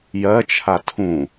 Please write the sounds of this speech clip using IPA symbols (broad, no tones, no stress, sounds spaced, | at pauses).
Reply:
j ɜ t͡ʃʰ a tʰ ũ